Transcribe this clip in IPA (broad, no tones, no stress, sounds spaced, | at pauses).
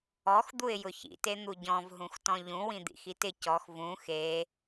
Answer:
ɔ x d̪ u ɪ̯ j ʊ ç ḭ t e n̪ u ɟ ɔ̃ v ɦ ũ x t ɔ̃ ʎ ũ w ĩ d̪ ḭ x i t ɪ c ɔ x v ũ x e